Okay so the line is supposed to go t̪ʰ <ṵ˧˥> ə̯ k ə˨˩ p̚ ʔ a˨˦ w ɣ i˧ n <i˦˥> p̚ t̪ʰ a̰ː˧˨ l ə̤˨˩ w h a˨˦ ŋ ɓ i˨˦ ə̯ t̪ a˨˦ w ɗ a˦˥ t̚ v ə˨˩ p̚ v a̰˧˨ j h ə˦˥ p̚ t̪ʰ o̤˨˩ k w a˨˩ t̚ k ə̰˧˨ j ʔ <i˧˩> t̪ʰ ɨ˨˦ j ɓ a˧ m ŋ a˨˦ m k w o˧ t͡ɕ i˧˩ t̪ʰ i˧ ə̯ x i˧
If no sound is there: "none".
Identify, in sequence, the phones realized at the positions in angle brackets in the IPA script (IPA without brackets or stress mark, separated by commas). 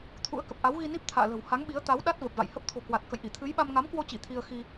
ṵ˧˥, i˦˥, i˧˩